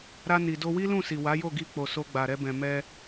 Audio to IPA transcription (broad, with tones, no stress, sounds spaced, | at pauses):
ɾ a˧ n i˨ d o˧ w i˦ l ũ˦˨ s i˨ w a˨˦ j o˦˨ ɡ i˧ k͡p o˨ s o˧ ɡ͡b a˨ ɾ ɛ˧ b ɛ̃˨ m ɛ˧